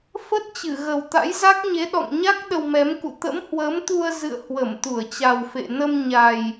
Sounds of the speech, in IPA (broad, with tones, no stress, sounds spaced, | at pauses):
f ə˦˥ t̚ t͡ɕ ɨ˧˩ ɣ ə˨˩ w t̪ a̰˧˥ j z a˦˥ k̚ ɲ e˨˦ ɗ ɔ̰˧˨ ŋ ɲ a˦˥ k̚ ɗ ə˧ w m ɛ˨˦ m k ṵ˧˨ t̪ ə̰˧˥ m h w əː˨˦ m t̪ u˧ ə̯ z ɨ̰˧˨ ə̯ h w ə˧˩ m t̪ u˧˩ ə̯ t͡ɕ a˨˩ w f ḛ˧˨ n ə˧ m ɲ a˨˩ j